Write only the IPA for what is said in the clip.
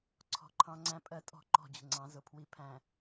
ǀʰ ɔ̤˨ ǃʰ ɑ̃˦ ŋ͡ǀ æ̃˦ pʼ ɜ˦ tʼ ɔ̤˦˨ ǃ ɔ̤˦˨ d͡ʑ ə̤˨ ŋ͡ǀ ɑ̃˨˦ z ʊ˨ pʰ w i˦ pʰ æ̃˨

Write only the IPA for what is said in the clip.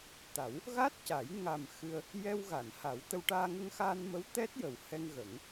t̪ a˨˩˦ w | ɣ a˦˥ t̚ c a˨˩˦ j ŋ a˨˩ m x ɨ˧ ə̯ | j ɛ˧ w ɣ a˨˩˨ n h a˨˩˦ w t̪ ə˧ w ʈ aː˧ ŋ ə˧ ŋ x aː˧ n m ə˧˥ w t̪ ɛ˦˥ t̚ j ə˨˩˦ w h ɛ˧ ŋ ɣ ə˨˩˦ ŋ

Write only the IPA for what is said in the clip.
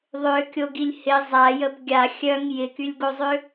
ðˤ ø kʲ o ɡ i lʲ h ɪ zˤ a j ə b ɡʲ a xʲ œ ŋ j ɪ k y lʲ ɡ o zˤ ø

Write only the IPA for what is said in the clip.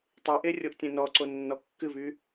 tˤ e ʔ e rʲ o ʔ tʲ ẽ n ɔ ǀ o nː ɔ kː ɨ v y

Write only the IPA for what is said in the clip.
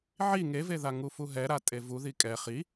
ʕ i ŋ e v e ð a ŋ u f u ɦ ɛ ɾ a tʼ e v u ð i kʼ ɛ χ i

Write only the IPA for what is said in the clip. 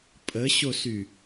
pʼ ə ɕ o s y

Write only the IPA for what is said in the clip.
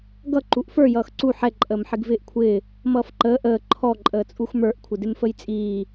ɡ ʌ ǃ u ʔ f ə˞ j ʌː x ǀ u ħ ɛ ǃʼ əː m ħ ɪ ɡ v ɪː ʔ kʷʰ ɪː | m ʌː f ǃ əː ʔ əː ǃʰ ɔ ǃʼ əː t͡sʼ u x m ə˞ ʔ kʷʰ ɪ d ɪ m f ə j t͡sʼ iː

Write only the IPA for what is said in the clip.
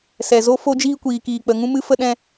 s ɛ˨ z o˦ f o˦ d͡ʒ iː˦ kʷ iː˨ k iː˨ k͡p ə˨ ŋ ũ˦ m ɨ˦ f ə˦ ɗ ɛ̃˧

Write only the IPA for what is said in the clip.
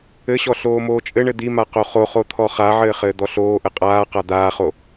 ɘ ɕ ɔ ɬ oː m oː t͡ʃʼ ɘ ɳ ɘ d̪ i m a q o χ o χ o t̪ʰ ɔ χ a ʕ ɘː χ ɘː d̪ ɔ ɬ oː ʔ ɘ qʼ aː q a d̪ aː χ o

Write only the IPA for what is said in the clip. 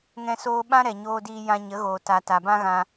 ŋ ɛ̃˧ s oː˧ ɓ ã˦ ɾ ɛ˨ ɲ oː˧ d iː˧ j ã˧ ɲ ə˨˦ ɣ oː˨ t a˨ t a˨ b ã˦ ɣ ã˧

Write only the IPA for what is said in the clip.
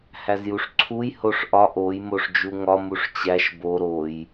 h æ z j u ʂ ǀʰ u j h o ʂ ʔ ɒ ʔ o j m o ʂ d͡ʒ u ŋ ɒ m u ʂ t͡ɕ æ ʃ b o ɾ o j

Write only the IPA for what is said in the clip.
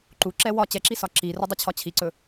ǃ u ǁ ɛ w ɒ t͡ɕ ɛ ǁ i s ɒ ǁ i r ɵ dˤ ɵ t͡ɕʰ ɒ t͡ɕʰ i ǀ ɵ

